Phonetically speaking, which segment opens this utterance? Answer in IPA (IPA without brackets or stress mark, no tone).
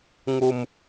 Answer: ŋ